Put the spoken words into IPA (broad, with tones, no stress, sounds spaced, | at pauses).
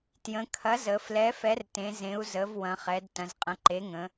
t j ə̃˩˧ kʰ ɐ˩˥ z ə˩˧ f l ɛ˩˥ f ɛ˩˥ r t ẽ˩˧ z ẽ˩˧ u̯ z ə˩˧ v w ɐ̃˩˧ χ ɛ˩˧ d t ɐ̃˩˧ z qʼ ɐ̃˩˥ ǃ e˩˥ ŋ ə̃˩˧